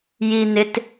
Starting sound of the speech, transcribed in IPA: j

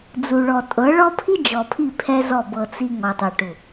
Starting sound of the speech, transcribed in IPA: d͡z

